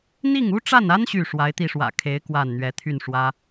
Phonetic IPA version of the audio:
n̪ i˥˩ ŋ u˥ ʈ͡ʂ a˥˩ n a˥ n ɕ y˥˩ ʂ w a˧˥ ɪ̯ t̪ i˧ ʂ w ä̰˨˩ kʰ e˧˥ ɪ̯ k w a˥˩ n n̪ ɥ ɛ˧˥ t̪ʰ y˥˩ n ʂ w ä˥

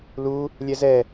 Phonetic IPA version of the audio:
l u | lʲ ɛ z ɛ

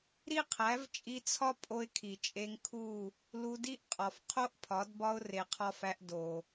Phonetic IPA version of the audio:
ɾ i˦ qʰ æ˨˦ v t͡ʃʼ i˧ t͡sʰ ɒ˦ pʼ o˧ ɪ̯ kʰ i˨ t͡ʃʼ e˧ ŋ kʰ u˦˨ | l u˧ d i˦ ʔ qʼ ɒ˨ f qʰ o˦ ʔ pʰ ɒ˨˦ d b ɒ˦ ʊ̯ r e˨ qʰ ɒ˧ f æ˧ ʔ d o˨

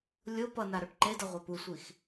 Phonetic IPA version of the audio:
lʲ o p ʌ n a ɾ o ʈ ǃ e d ʌ ʁʷ a p u sʷ i x

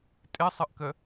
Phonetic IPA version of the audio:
tʼ ɪ sˤ ə ʔ k ə

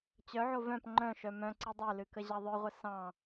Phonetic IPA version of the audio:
t͡ɕ œ ʕ o v œ̃ p ŋ͡ǃ œ̃ ʃ œ m œ̃ ǀ ɨ dˤ œ l ɨ k ə ʑ ɑ ðˤ œ ʁʷ ə s ɑ̃

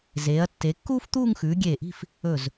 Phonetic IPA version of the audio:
z eː˩˧ ɐ̯ tː e˩˧ kː uː˥ f t̪ uː˥˧ ŋ x ʉː˩˧ ɡʲ eː˧˩ ʔ i̤˥˧ f | ɵ˧˩ z

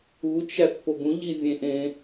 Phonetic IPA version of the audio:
u t͡ʃ æ θ f o ɡ ũ ʎ i vʲ ẽ ʔ ẽ

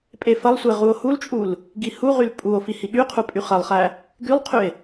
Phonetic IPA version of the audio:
pʼ e f ɐ lˠ sʷ e ʁ u o̯ h u l t͡ʃʼ u l | ɡ i h u ʁ y l pʼ u o̯ f i h i ɠ y qʰ u pʼ y χ ɐ lˠ χ æ | ɡ y lˠ qʰ y e̯

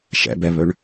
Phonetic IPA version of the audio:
ʃ ɛ̰ b ɛ β ɵ ɳ

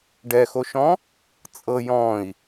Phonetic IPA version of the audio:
ɖ ɛ x o ʃ ɔ̃ | t͡sʼ ɤ j ɔ̃ i̯

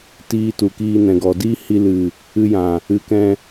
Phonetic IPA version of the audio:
t iː˧ t u˨ k iː˧ n ɛ̃˨ ɡ ɔ˨ d iː˦ h i˧ l ɨ˨ | ɨ˧ j ã˨ | ɨ˨˦ k ɛ̃˧

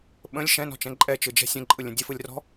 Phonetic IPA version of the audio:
ɓ ə̃ lʲ ʃ ɛ̃ n ɔ̤ t͡ʃ ɛ̃ ǃʼ ɛ t͡ʃ ɯ d͡ʒ ɛ̤ sʲ ə̃ ǃʼ ɯ lʲ ə̃ dʲ ə f ɯ lʲ r ɔ̤

